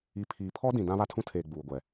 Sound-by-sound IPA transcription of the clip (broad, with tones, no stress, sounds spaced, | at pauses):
i˨ pʰ iː˨ pʰ ɔ˦ d ĩ˨ d ã˦ β a˦ tʰ ũ˦ tʰ eː˨ ɡ͡b uː˨ ɡʷ ɛ˨